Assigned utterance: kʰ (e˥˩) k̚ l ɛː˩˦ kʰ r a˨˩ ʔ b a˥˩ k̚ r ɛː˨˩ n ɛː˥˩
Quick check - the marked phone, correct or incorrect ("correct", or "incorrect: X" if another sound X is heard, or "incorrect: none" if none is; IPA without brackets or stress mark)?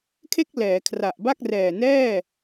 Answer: correct